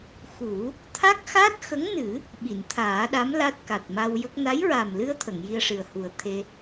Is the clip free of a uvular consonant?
yes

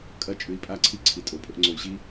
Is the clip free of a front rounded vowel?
no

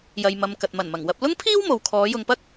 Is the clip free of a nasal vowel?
yes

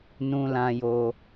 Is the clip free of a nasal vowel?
no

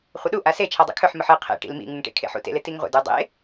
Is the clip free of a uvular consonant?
no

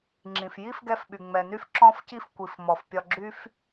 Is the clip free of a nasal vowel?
no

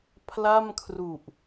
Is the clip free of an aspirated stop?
no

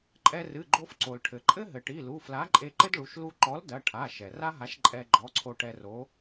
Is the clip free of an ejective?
no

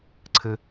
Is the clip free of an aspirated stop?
no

